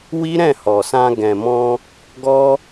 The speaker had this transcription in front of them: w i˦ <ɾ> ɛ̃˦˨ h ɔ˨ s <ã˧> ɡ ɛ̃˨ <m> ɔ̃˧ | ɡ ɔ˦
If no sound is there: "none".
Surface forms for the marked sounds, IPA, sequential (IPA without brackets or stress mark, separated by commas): ɾ, ã˧, m